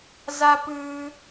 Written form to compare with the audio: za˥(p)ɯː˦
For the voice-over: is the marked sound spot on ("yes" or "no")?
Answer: yes